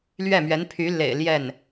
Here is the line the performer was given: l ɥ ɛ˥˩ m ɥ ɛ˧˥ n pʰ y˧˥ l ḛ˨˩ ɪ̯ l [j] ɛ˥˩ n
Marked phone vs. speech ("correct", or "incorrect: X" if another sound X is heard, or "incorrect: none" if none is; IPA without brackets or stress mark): correct